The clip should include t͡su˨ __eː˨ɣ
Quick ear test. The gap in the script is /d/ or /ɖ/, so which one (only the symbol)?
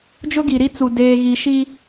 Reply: d